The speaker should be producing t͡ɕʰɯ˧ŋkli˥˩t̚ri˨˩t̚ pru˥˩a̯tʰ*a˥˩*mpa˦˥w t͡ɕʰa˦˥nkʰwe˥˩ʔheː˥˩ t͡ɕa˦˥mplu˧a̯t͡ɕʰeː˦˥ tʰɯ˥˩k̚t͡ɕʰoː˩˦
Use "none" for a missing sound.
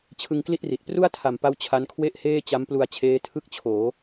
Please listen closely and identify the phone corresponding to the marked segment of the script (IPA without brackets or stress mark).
a˨˩